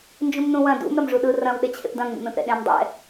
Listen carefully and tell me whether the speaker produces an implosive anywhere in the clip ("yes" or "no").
yes